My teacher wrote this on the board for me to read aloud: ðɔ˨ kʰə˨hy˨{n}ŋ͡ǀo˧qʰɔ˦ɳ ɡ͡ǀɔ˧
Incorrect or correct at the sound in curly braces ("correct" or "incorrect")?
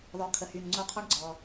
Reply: correct